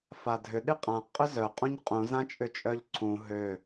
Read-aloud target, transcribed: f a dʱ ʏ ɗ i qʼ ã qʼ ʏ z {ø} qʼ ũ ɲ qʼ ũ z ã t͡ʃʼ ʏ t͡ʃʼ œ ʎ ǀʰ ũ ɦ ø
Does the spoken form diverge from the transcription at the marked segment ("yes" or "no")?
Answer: yes